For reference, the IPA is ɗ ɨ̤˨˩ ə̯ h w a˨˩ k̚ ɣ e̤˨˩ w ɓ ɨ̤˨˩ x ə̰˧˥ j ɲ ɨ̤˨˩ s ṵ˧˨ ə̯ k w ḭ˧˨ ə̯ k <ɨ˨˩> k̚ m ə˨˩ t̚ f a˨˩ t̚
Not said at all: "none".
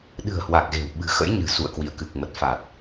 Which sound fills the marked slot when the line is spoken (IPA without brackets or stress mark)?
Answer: ɨ˨˩